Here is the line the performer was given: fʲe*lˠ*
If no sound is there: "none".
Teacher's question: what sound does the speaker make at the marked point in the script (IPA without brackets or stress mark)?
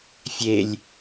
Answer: lʲ